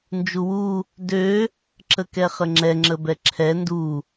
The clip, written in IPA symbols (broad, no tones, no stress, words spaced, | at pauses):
nd͡ʒuwu | dø | ǁəkɛχəŋ͡ǁɛ ŋ͡ǁəbɛǁʰɛ ndu